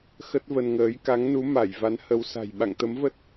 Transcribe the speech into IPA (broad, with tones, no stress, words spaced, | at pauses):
xə˦˥t̚və˧nŋəː˨˦j ka˨˦ŋnu˨˦ ma˧˩j va˨˦nhə˨˦wsa̤˨˩j ɓa̰˧˨ŋt̪ə˨˦mvə˦˥t̚